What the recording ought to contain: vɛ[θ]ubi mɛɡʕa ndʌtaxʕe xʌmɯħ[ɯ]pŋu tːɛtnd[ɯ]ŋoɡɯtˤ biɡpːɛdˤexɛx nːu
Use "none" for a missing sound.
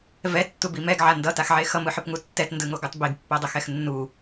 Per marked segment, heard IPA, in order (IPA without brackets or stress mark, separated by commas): tː, ɯ, ɯ